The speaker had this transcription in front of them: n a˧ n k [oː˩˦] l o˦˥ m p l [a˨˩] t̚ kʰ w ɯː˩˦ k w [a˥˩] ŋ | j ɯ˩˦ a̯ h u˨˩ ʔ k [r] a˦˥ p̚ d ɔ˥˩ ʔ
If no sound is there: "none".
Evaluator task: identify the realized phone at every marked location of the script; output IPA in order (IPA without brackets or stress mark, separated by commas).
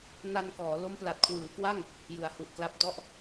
ɔː˩˦, a˨˩, a˥˩, l